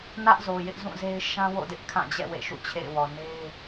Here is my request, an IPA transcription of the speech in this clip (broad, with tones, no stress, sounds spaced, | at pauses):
n ä˦ ʔ z o˨ j ɪ˦ ʔ z ũ˦˨ z e˦ ɪ̯ ʃ ã˦ w o̰˦˨ d ɪ˦ ʔ kʰ ã˦˨ d͡ʑ ɛ̰˦˨ w ḛ˦˨ ʃ ṵ˦˨ t͡ɕʰ ḛ˦˨ ɪ̯ w ɔ˨ n e˦ ɪ̯